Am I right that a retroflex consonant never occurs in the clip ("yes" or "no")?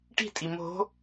no